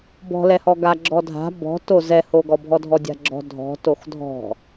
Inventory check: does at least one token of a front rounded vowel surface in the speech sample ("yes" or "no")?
no